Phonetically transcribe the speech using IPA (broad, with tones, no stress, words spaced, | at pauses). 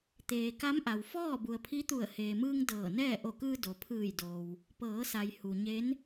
t̪eː˩ka˧˥m ʔa˩wfɔː˥˨ bu˩ə̯pʰi˧˥t̪u˧˩ə̯ heː˩mɯː˧ŋ dɤː˧˩nɛː˥˨ ʔo˧˩kɯː˧ do˩ pʰɯː˧˩jdoː˩w | pɤː˩˧sa˩j hu˩ɲe˧˥n